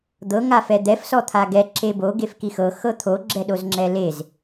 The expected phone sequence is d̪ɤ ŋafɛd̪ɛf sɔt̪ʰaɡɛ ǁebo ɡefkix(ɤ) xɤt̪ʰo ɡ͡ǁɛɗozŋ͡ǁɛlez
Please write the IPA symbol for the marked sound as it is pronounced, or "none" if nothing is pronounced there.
ɤ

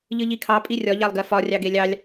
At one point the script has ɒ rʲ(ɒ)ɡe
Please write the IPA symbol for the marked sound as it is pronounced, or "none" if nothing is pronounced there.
ɑ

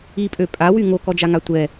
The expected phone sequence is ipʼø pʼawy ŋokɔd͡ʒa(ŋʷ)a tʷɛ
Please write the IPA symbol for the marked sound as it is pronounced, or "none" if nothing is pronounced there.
ŋ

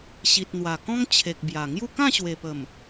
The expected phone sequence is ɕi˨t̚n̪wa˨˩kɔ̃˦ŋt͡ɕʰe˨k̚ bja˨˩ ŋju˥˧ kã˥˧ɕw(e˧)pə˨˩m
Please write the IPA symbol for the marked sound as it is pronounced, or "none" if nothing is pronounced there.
e˨˩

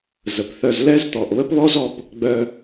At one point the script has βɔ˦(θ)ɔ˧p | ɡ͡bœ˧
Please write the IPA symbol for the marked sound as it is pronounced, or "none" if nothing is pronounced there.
z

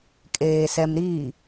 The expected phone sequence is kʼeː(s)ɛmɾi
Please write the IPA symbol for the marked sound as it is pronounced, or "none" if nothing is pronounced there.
s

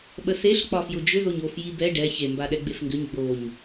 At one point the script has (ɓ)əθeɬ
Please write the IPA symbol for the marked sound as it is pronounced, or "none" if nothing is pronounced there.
ɓ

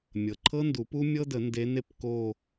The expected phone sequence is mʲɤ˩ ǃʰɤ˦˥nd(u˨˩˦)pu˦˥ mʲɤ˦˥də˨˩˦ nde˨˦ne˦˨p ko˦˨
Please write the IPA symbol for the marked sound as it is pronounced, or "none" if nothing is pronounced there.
u˨˩˦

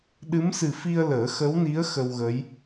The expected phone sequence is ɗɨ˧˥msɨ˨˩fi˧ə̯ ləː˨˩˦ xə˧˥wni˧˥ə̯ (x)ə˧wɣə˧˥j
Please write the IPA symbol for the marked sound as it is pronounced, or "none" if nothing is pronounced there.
x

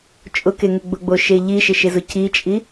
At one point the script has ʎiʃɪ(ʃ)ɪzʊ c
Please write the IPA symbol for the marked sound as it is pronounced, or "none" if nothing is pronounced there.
ʃ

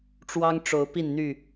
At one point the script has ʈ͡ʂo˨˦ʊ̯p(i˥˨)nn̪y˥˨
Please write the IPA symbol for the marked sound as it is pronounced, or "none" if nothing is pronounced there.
i˥˨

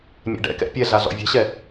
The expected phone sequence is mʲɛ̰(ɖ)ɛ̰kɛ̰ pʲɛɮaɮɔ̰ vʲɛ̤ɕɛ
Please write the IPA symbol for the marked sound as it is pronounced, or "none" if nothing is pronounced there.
ɖ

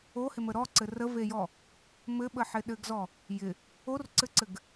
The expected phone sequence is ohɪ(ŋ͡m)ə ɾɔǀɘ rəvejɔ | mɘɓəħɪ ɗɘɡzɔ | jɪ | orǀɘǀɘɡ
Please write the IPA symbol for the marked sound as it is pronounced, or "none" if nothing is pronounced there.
m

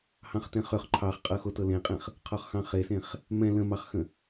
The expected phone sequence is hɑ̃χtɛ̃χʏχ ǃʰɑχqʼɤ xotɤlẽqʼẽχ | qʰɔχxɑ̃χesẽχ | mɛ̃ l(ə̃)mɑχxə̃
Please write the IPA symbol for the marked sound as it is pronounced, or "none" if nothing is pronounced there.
ə̃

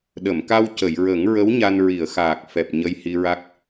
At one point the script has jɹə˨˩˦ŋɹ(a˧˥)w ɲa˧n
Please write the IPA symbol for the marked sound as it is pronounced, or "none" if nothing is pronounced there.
ə˧˥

